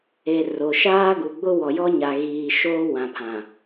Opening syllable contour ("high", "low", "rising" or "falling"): low